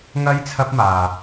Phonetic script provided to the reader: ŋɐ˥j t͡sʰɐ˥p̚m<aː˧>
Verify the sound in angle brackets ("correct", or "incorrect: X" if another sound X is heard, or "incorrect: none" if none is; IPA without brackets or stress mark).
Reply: correct